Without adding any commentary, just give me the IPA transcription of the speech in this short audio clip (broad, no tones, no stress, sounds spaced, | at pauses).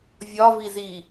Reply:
vʲ ɒ v i z i